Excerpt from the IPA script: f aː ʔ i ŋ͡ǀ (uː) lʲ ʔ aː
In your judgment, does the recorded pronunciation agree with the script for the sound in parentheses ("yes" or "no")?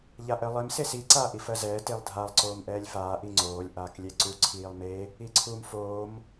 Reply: no